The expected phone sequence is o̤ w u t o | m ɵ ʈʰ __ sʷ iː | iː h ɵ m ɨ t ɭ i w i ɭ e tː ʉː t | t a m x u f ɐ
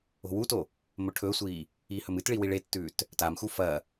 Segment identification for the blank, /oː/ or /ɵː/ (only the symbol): ɵː